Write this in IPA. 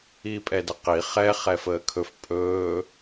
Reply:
iː pʼ ɛ d ə q i χ ɛ χ ɛ f əː kʰ ɵ f pʼ ɵː

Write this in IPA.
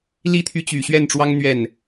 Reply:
l i˥ t̪ʰ y˧˥ t͡ɕ y˨˩ ɕ ɥ ɛ˥˩ n ʈ͡ʂ w ɑ˥ ŋ n̪ ɥ ɛ˥˩ n

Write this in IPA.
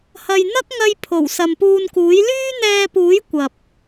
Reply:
h ɐ˨ j n̪ ɐ˥ k̚ ŋ ɐ˧ j pʰ o˨˩ w s ɐ˨ m p uː˧ n k uː˨˥ j l yː˥ n̪ ɛː˧ p uː˨˥ j kʷ ɐ˨ p̚

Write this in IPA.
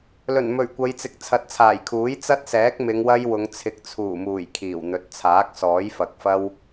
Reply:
l ɵ˨˩ n m ɵ˨˩ ɥ kʷ ɐ˨˧ j t͡s ɪ˨ k̚ t͡sʰ ɐ˨˥ t̚ t͡sʰ aː˨˩ j kʰ uː˨˥ j t͡s ɐ˥ t̚ s ɛː˨˥ k̚ m ɪ˨˧ ŋ w ɐ˥ j w ʊ˨˧ ŋ t͡sʰ ɪ˨ k̚ t͡sʰ uː˨˩ m uː˨˩ j kʰ iː˨˩ w n̪ ɵ˨˥ t̚ t͡sʰ aː˨˥ k̚ s ɔː˨˥ j f ɐ˨ k̚ f ɐ˥ w

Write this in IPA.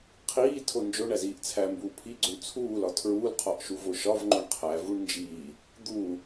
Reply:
qʰ iː tʰ o n d͡ʒ o ɳ æ z iː ʔ t͡sʰ æ m b uː pʰ i ɡ͡ǀ o ɳ t͡sʰ uː l ɒ tʰ ɹ uː l qʰ ɒ ʔ ʃ u v o ʃ ɒ v ŋ͡ǃ o ɳ qʰ æ v u ɳ n d͡ʒ iː | d̪ uː

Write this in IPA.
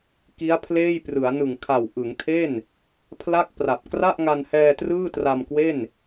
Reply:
k i˦˥ a̯ pʰ l eː˥˩ j p r ɯ˩˦ a̯ n ɯ˨˩ ŋ kʰ a˨˩ w ʔ ɯ˩˦ ŋ tʰ e˥˩ n | pʰ l a˥˩ k̚ p r a˨˩ p̚ k r a˥˩ ʔ ŋ a˧ n h ɛː˧ t r ɯː˥˩ t r a˧ m k w e˥˩ n

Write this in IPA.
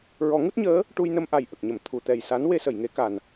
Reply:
ɹ ɔ˨˩˦ ŋ u˦˥ t̚ ɲ əː˧˥ | ʈ u˧ j n ə˧ m ʔ a˨˩ j ʔ ə˨˩ k̚ ɲ ə˨˩˨ m t̪ʰ u˨˩˨ t̪ ɛ˨˩ j s a˧˥ n w e˧ s ə˨˩˨ j ŋ e˨˩˦ k a˨˩ n

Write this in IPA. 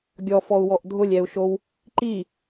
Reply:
ɡʲ ɔ f ɔ u̯ w ɔ ʔ dʱ ʊ lʲ ɛ u̯ ʃ o w | ǃ i

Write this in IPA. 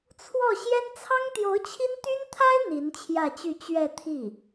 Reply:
t͡sʰ w ɔ˥˩ ɕ j ɛ˥ n t͡sʰ ɑ˥ ŋ t̪ j o˧˥ ʊ̯ t͡ɕʰ i˥ n t̪ y˥ n t̪ʰ a˥ ɪ̯ n̪ i˧˥ n t͡ɕʰ j ä˥˧ t͡ɕ y˥˧ t͡ɕ ɥ ɛ˥˧ t̪ʰ i˥˩

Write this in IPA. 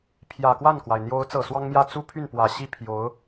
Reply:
pʰ j ä˨˩ k w a˥˩ n k w a˩ ɪ̯ n̪ j o˧˥ ʊ̯ t͡s ɤ˨˩ s w ɑ˥ ŋ m j ä˥˩ t͡s u˥ pʰ y˥˩ n p w ä˨˩ ɕ i˥ pʰ j o˧˥ ʊ̯

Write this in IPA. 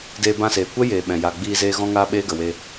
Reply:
d eː˧ b ã˦˨ s eː˨ kʷ ɛ˦ j eː˨ ɓ ɛ̃˨ j a˨ ɡ͡b iː˧ z eː˧ ɣ ɔ̃˦ ŋ aː˦ ɓ eː˦ ɡ ə˨ w e˧

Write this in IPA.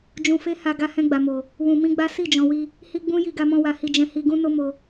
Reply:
d͡ʒ ũ˧ f e˦ h a˧ ɡ a˧ h ɛ̃˧ ɡ͡b a˨ m o˨ | w ũ˧ m ĩ˦ ɡ͡b a˦ s i˦˨ d͡ʒ ɔ̃˨ w i˧ | h i˦ ɡ͡b ũ˦ j i˧ ɡ a˧ m ɔ̃˧ w a˨ h i˧ d͡ʒ ɛ̃˧ h i˧ ɡ ũ˦ n o˦ m o˧

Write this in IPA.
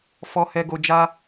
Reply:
f ɔ˨ h ɛ˨ ɡ o˨ d͡ʒ a˧

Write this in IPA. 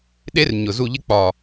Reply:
ɗ e˦˥ r ɲ ʊ˨˩ z u˦˨ ʎ ɪ˦˥ k͡p ɒ˨˩

